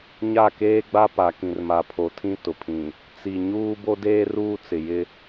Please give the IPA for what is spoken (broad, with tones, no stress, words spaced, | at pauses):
ɲa˦˨keː˦ɡ͡ba˦pa˨ kĩ˨rma˨pʰo˨tʰĩ˦ tʊ˨pʰĩ˨ | t͡si˨ɲuː˦ bo˦deː˦ruː˦ t͡sɪ˨jɪ˦